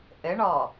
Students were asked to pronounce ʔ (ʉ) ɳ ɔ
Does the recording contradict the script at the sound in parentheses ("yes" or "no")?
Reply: yes